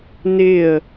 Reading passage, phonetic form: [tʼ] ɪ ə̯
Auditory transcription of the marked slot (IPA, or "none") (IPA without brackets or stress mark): n